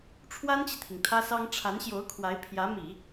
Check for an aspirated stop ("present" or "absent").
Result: present